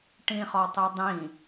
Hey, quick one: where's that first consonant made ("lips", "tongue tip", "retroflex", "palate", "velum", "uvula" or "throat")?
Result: retroflex